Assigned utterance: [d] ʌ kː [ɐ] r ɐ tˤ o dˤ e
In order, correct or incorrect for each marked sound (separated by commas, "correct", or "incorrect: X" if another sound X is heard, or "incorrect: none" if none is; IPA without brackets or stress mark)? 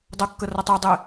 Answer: incorrect: dˤ, incorrect: ə